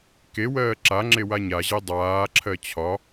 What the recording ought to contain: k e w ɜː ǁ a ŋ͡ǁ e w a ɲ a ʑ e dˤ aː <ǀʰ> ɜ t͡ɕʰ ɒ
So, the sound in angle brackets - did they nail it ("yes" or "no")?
no